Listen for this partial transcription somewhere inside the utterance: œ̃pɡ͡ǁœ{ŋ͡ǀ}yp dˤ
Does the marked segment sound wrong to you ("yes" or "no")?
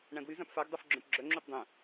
yes